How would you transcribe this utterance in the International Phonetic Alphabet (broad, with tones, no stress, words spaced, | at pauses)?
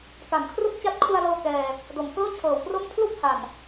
ka˨˩nkʰru˥˩k̚ t͡ɕa˦˥t̚kʰu˧a̯lɤː˧ kɛː˧ | do˩˦mkɤː˥˩t͡ɕʰɤː˩˦wpro˥˩m pʰlu˥˩k̚ha˨˩n